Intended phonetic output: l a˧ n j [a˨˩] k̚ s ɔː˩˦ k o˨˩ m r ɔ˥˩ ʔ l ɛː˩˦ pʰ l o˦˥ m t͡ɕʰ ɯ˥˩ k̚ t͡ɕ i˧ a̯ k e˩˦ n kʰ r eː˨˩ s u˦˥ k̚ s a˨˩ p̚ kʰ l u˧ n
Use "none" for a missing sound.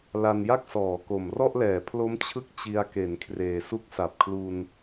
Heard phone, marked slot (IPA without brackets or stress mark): a˥˩